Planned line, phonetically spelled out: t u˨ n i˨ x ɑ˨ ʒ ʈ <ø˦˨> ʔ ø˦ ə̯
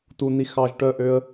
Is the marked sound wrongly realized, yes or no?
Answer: yes